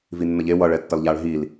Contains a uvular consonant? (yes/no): no